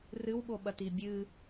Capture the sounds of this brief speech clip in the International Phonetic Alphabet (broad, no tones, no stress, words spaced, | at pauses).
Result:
rɨw ɓoɓɐtibʲɨ